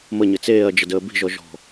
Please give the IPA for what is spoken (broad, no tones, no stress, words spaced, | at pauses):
məɲɘ t͡seːɐ̯d͡ʒədəː bi̤ʒɔʒɔ̤